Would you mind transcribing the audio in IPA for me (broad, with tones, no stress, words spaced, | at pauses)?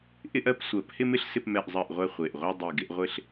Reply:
ʔɪ˦ʔɜ˦p sʷɜ˨˩˦phɪ˦mɪ˦ɬ sɪ˦pmɛ˦˨ʔzˤɜ˦˨ʔʁʷɛ˦˨ χʷe˨˩ʔʁʷɜ˦ dˤi˨˩ɡɪ˦ʔ ʁʷɪ˦ɬ